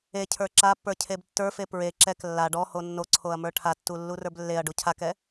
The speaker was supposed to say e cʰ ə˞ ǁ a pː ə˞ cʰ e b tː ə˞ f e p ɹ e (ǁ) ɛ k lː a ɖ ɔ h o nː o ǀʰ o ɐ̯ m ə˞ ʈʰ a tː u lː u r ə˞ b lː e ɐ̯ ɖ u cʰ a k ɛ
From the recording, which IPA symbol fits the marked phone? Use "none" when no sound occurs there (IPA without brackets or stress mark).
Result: ǁ